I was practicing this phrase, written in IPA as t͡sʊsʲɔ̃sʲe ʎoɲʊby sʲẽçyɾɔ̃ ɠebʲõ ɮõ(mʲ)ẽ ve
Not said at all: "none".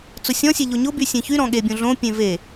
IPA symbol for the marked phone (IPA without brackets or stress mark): pʲ